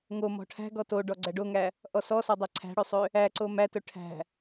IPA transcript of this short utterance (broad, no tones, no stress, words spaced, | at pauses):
ŋomɔ̤ ʈʰæ̤ɡɔ to ɖɔɡ͡ǀæɖoŋæ | ʔɔsɔsɔdˤæ ǀʰæ̤ɽøsˤø | æǀo mætɵ ʈʰæ̤